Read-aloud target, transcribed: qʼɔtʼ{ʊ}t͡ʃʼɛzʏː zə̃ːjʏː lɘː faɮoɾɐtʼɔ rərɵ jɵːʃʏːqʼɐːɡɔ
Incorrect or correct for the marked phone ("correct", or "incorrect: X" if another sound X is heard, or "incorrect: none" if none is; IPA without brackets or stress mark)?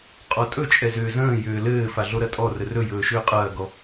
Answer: incorrect: ɵ